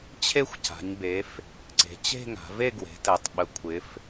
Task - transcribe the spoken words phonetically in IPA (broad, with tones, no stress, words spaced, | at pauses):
t͡ɕʰe˥˧xʷca̤˩˧ɲbe˩˧f | ǀe̤˩˧t͡ɕe̤˥˧ŋa̤˩˧ve˥˧ ɡwe̤˩˧tɛ˩˧tˤɓə˩˧ kʷʰɪ˩˧f